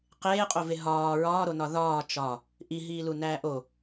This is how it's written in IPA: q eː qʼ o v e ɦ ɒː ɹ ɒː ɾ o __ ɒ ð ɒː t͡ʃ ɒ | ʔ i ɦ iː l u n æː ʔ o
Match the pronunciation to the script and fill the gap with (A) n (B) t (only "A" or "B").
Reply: A